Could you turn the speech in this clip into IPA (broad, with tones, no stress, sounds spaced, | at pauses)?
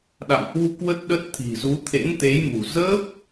ɗ a̰˧˨ m h w u˧ k w ə˦˥ t̚ ɗ ə˦˥ t̚ t̪ʰ i̤˨˩ z u˨˦ t̪ʰ ḛ˧˥ n t̪ e˨˦ j m ṳ˨˩ z əː˦˥ p̚